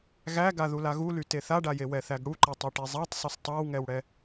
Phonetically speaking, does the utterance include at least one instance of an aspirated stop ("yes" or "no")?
no